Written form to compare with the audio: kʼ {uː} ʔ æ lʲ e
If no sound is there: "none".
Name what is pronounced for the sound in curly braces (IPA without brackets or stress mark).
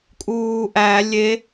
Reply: uː